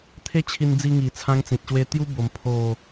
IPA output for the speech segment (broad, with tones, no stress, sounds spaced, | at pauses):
t̪ʰ e˦ t͡ɕʰ i˧ n d͡z i˧ ŋ i˨˩ t͡sʰ ã˦ ŋ t͡s ĩ˨ t̚ ɕ w e˦ t̪ j u˦ b o˧ m pʰ o˥˧